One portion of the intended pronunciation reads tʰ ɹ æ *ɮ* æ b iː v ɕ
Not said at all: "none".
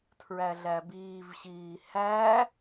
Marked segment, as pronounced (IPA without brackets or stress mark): ɮ